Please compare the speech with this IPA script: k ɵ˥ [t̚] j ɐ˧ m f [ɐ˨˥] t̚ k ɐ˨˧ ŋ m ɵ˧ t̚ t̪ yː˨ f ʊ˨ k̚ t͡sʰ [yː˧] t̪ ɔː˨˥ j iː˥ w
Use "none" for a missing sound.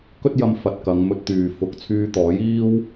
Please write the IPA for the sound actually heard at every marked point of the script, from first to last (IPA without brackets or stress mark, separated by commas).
t̚, ɐ˨, yː˧